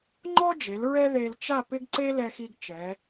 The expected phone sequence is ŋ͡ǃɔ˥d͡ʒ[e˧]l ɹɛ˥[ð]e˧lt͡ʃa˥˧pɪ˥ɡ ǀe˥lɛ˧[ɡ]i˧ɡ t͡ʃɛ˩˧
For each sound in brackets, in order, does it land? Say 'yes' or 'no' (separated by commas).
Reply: no, yes, no